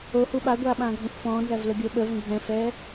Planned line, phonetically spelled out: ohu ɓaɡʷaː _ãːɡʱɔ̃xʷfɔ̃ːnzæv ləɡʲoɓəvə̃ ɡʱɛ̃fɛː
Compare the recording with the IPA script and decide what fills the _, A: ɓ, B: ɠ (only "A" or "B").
A